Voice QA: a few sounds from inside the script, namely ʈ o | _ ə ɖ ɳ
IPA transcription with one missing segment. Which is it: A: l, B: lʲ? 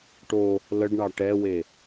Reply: A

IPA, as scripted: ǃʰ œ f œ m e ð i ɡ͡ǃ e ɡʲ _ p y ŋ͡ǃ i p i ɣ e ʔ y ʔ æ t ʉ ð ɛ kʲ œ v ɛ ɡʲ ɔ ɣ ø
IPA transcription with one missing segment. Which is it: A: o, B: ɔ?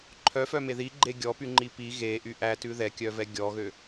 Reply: B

